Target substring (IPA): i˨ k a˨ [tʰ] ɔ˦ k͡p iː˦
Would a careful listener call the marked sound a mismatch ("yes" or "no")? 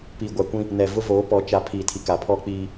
yes